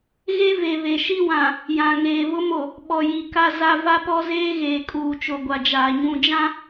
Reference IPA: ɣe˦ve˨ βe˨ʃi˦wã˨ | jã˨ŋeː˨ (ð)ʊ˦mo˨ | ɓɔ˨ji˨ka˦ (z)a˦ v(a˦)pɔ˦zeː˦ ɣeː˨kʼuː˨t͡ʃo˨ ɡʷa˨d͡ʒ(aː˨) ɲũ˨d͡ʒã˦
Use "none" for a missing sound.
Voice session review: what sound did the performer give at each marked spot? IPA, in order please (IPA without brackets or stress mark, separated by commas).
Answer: β, z, a˦, aː˨